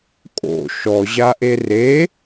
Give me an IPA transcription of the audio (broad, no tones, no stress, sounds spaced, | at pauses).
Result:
kʼ o̰ ʃ ɔ ʑ a ʔ e r e